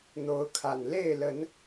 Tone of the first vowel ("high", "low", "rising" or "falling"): rising